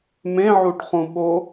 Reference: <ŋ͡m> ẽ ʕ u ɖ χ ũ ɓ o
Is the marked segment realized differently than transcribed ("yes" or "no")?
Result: yes